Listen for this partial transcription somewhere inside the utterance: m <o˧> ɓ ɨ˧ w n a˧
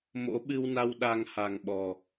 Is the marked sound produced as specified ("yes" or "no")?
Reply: no